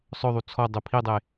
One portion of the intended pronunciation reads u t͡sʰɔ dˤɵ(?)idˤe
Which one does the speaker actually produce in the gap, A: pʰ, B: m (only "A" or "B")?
A